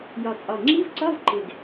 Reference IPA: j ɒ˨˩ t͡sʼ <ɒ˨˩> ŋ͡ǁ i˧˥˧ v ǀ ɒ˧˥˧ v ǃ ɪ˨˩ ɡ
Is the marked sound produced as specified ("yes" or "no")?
yes